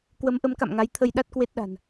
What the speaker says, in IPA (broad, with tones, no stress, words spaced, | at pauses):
kwə˨˦mʔə˨˦mka̰˧˨mŋa˨˦j t̪ʰə˧j ɗa˦˥t̚kwe˦˥t̚ɗa̤˨˩n